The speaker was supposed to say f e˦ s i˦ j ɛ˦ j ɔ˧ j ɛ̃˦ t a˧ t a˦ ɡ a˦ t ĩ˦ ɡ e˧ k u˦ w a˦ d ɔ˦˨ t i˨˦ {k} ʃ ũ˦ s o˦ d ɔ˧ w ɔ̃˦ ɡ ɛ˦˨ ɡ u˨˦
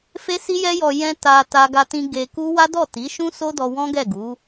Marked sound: incorrect: none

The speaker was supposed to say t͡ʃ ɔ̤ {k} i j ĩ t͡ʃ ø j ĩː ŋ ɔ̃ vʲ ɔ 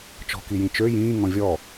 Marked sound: correct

